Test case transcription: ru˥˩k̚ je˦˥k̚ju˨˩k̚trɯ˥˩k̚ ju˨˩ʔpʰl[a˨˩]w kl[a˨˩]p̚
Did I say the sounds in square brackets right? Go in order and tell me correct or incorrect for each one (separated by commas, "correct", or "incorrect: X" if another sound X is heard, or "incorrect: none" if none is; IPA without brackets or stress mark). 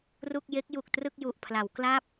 incorrect: a˩˦, incorrect: a˥˩